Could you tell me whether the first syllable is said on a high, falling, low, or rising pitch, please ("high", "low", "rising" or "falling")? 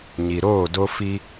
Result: low